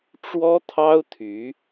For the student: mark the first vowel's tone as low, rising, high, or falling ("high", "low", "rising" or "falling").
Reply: high